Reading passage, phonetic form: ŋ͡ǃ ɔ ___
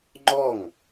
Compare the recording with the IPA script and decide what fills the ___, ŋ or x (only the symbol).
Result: ŋ